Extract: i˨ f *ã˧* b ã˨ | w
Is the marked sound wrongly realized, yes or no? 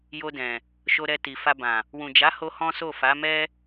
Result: yes